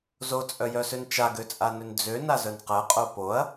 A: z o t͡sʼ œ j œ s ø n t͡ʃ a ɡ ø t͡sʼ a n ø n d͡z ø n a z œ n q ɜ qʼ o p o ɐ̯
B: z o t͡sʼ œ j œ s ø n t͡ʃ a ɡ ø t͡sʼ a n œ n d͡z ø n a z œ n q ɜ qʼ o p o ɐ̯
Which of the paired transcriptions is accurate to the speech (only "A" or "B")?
A